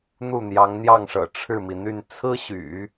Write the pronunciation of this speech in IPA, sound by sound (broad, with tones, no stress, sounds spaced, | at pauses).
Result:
n̪ u˥˩ n̪ j ɑ˧˥ ŋ n̪ j ɑ˥˩ ŋ ʂ ɤ̰˨˩ ʈ͡ʂʰ ɻ̩˥˩ m i˩ n̪ y˥˩ n t͡sʰ ɹ̩˥ ɕ y̰˨˩˦